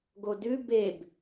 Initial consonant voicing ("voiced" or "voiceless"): voiced